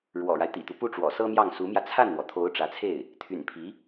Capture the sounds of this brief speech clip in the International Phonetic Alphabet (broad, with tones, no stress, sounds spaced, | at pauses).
ɻ w ɔ̰˨˩ ɻ a˦ ɪ̯ t̪ ḭ˨˩ t̪ u˦ p u˥˩ ʈ͡ʂ w ɔ̰˨˩ s ɤ˥ m j ɑ˥˩ ŋ s u˧˥ m j ä˧ t͡sʰ a˥˩ n n̪ w ɔ˩ t̪ʰ o˧˥ ʊ̯ ʈ͡ʂ ä˧˥ t͡sʰ e˥˩ ɪ̯ | t̪ʰ y̰˨˩ n pʰ i˧˥